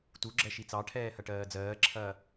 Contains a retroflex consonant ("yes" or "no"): yes